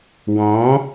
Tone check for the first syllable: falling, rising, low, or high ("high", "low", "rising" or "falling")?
rising